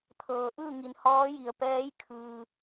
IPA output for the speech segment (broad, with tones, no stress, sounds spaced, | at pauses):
t̪ʰ ɤː˩ ʔ ɯː˥˨ ŋ i˩ n h ɔː˧˥ j i˩ ə̯ p ɛː˧˥ j kʰ ɯː˩